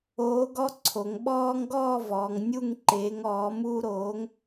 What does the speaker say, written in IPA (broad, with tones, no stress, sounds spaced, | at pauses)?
oː˨˥ ɡ ɔ˦ ǀʰ o˩˧ ŋ ɓ ɔː˦ ŋ ɡ ɔː˥˨ v ɔː˩˧ ŋ nʲ u˥˨ ŋ ǃ eː˨˥ ŋ ɔː˨˥ m uː˦ ɾ oː˨˥ ŋ